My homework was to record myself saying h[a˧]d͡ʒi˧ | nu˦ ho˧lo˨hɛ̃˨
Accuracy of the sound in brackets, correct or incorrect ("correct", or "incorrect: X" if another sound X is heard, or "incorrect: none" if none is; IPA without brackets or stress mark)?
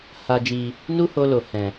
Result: correct